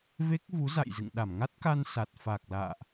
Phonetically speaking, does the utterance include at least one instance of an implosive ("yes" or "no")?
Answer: yes